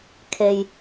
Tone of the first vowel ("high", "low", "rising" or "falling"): low